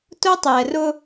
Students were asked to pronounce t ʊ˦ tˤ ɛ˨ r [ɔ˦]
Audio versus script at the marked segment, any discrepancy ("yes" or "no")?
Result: yes